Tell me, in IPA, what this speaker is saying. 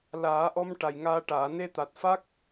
laː˨˩˦ʔɔ˧m ʈa˨˩jŋaː˧ʈaː˨˩˨ ne˧t̪a˨˩t̚fa˦˥k̚

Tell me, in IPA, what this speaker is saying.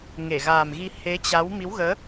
ŋe˧˩ɣaː˨˩mɣi˧ he˨˦t͡ɕa˨˦w mi˨˦wɣəː˨˦

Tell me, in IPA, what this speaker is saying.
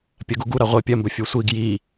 pʲɐɡuɡu ɾaʁʷe pʲɐmbɵ fʲusʷiɡ ji

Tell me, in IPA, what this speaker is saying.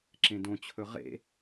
ǁẽdõt͡ɕʰɵ ʁḛ

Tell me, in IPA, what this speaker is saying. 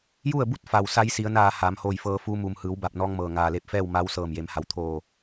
ju˥˨ə̯bu˥˨t̚fa˩w sa˧˥jsi˩˧ə̯naː˧˩ haː˩˧mhoː˧˩jfɤː˧ fuː˧mu˩m hɯː˩˧wba˧˩p̚nɔː˧ŋmɤː˩ ŋaː˩le˧˩p̚ fɛː˥˨wma˧˥w sɤː˧˩mje˩˧mha˩˧w t̪ʰoː˧˩

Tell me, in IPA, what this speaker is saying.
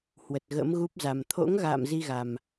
hwə˨˩t̚ɣə̰˧˥mɣu˦˥p̚za˨˩m t̪ʰo̰˧˥ŋ ɣa̰ː˧˨m zi˧ɣa˨˩m

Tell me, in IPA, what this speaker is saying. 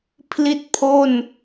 pʰli˥˩t̚pʰo˥˩n

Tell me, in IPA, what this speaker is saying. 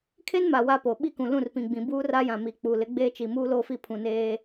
kʰe˦nma˨ wa˦ po˨ ɓi˦kũ˨ lũ˦˨rpĩ˨ɡ͡bĩ˨ buː˦ra˦jã˨ mi˨k͡pu˨ lɪ˨˦ɡ͡beː˦t͡ʃi˨ muː˦loː˦fi˦˨ pʰũ˨ neː˦

